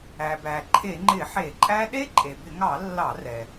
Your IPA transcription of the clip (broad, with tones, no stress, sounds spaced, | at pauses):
æ˩ b æ˩ ǃʰ e˧˩˧ ŋ͡ǃ ɪ˧˩˧ ħ e˧˩˧ ǃʼ æ˦˥ ɗ e˦˥ ǃʼ e˩ b ɪ˧˩˧ ŋ ɑ˧˩˧ lː ɑ˧˩˧ r ɛ˩